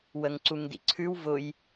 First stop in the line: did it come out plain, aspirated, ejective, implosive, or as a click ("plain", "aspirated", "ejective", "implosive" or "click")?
click